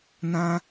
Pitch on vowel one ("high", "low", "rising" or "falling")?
high